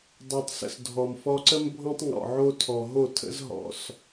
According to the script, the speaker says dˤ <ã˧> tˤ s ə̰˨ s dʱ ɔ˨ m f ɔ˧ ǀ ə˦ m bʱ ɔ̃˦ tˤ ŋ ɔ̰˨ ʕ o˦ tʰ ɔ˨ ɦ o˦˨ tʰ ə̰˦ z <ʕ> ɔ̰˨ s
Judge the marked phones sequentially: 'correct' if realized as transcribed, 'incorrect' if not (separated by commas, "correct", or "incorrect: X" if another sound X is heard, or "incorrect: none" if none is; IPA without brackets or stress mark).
incorrect: a˧, incorrect: ɦ